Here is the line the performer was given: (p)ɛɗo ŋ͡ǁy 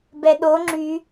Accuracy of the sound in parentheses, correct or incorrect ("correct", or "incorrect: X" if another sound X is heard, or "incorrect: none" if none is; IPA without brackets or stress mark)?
incorrect: b